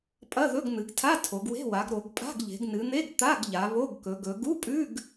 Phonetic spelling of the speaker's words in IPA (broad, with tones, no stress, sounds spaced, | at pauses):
pʼ ɐ˧˥˧ ð ɵ˧˥˧ ɡ n̪ ɨ˩˧ ɡ tʰ a˧˥˧ tʰ o˩˧ ɡ w e̤˧˥˧ w a˩˧ ɡ ɾ o˩˧ ɡ pʼ a̤˧˥˧ ɡ ʎ e̤˩˧ ɡ n ɨ˩˧ n̪ e˧˥˧ ɡ t̪ a˧˥˧ ɡ ʎ a˩˧ β o˧˥˧ ɡ k ɵ˩˧ ɡ ɵ˩˧ ɡ u˧˥˧ pʼ ʉ˧˥˧ ɡ